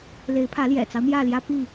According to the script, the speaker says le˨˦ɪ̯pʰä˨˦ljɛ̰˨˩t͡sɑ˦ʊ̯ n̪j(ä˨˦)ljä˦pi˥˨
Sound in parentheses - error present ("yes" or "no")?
yes